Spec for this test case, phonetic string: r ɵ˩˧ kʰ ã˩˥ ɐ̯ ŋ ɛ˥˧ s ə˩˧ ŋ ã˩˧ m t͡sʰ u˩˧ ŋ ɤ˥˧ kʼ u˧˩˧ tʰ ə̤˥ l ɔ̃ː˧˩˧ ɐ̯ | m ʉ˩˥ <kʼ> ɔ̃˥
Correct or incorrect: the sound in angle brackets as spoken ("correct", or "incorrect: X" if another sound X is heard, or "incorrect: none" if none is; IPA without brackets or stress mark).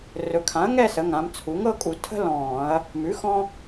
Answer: incorrect: x